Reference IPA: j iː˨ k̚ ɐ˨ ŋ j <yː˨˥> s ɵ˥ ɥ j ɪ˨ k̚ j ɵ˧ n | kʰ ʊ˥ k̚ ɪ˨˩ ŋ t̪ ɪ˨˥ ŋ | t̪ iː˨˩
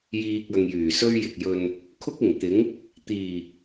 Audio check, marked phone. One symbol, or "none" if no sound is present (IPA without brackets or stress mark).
yː˨˩